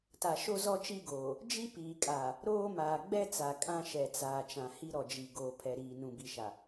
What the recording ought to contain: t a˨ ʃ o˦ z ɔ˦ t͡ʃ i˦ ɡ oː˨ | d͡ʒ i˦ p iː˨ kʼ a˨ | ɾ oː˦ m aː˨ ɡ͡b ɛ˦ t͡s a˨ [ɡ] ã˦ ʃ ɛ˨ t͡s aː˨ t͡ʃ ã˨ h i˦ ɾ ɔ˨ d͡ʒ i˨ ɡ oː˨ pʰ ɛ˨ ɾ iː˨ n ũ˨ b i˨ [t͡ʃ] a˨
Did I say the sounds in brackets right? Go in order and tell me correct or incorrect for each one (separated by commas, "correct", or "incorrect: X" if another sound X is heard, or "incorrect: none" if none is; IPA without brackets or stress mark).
incorrect: kʼ, incorrect: ʃ